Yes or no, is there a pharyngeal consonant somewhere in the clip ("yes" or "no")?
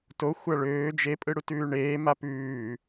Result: no